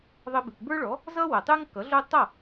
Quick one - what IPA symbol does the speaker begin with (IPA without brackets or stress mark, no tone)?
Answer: ðˤ